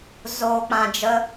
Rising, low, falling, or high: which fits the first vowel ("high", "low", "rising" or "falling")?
low